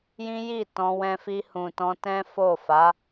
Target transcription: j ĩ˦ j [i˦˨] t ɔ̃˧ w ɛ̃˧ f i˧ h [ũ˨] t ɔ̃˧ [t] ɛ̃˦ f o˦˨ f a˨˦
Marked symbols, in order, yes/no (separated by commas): yes, yes, yes